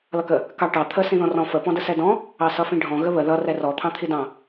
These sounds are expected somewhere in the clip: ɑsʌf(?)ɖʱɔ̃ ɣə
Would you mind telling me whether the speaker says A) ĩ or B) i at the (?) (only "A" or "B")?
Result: A